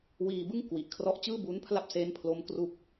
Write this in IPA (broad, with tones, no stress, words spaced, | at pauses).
wiː˧bɯ˥˩ŋ kwi˨˩ʔ kʰrɔ˦˥ʔt͡ɕɯː˥˩bu˦˥n pʰla˥˩p̚se˦˥npʰlo˦˥m kru˥˩k̚